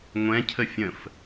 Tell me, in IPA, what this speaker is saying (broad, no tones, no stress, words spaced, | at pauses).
ŋʷɛ̃cʰə fʲə̃f